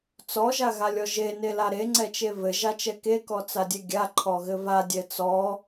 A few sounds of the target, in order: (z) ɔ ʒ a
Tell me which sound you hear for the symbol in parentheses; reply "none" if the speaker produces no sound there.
t͡s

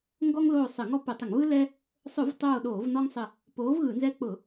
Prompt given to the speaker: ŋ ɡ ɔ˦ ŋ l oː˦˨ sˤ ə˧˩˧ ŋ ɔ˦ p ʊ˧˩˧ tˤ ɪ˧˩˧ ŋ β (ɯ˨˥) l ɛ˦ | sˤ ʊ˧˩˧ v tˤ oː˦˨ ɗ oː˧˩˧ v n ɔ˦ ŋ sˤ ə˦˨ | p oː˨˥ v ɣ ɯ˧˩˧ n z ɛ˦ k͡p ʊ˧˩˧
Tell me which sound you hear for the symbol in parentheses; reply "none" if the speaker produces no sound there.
ɯ˦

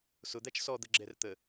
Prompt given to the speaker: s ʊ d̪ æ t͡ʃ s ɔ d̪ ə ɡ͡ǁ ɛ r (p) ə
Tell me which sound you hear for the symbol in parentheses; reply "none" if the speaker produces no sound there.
t̪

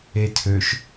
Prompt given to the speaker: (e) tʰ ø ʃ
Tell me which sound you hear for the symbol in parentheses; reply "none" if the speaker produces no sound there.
e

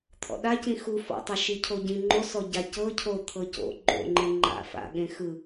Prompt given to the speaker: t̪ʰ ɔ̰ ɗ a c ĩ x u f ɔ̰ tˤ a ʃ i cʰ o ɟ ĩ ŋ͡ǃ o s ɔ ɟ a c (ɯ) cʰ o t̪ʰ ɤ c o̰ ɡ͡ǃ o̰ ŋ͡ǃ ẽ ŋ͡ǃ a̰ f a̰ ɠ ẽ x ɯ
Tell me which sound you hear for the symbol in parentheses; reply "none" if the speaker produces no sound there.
ɤ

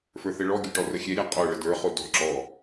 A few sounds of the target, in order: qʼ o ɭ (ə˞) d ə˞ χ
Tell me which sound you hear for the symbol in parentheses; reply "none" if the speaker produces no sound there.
ə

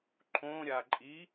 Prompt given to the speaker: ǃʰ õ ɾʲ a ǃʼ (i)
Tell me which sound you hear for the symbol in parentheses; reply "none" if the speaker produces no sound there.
i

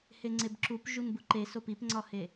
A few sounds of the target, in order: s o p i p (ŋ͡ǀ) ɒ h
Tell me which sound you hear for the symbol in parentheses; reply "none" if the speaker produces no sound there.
ŋ͡ǀ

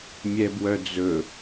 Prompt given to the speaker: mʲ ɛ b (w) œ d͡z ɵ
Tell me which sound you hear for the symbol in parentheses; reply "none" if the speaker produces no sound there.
w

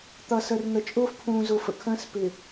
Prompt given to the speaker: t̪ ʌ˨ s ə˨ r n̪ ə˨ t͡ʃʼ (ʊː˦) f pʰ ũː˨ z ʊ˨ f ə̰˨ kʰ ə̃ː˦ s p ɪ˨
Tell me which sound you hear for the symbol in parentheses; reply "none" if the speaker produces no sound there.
ʊː˦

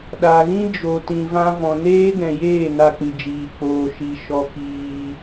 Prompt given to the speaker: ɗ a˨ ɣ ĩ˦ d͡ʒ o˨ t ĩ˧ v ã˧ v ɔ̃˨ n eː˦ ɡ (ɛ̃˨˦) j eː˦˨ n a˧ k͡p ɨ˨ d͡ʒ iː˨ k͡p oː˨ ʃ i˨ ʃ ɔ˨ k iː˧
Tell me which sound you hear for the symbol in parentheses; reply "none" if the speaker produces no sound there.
ɛ̃˨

